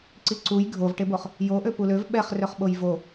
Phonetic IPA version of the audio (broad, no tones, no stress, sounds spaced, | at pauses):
ǀ i ǀ u j ɡʱ o v ʈ e b o χ | j o ʔ ø p u l ø v ɓ ɛ χ r ø χ ɓ o j v o